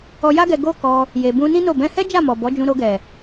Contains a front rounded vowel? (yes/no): no